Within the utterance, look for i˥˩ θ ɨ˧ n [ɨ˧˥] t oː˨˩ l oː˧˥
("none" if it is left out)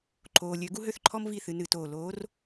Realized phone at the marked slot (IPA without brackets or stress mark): ɨ˧˩˧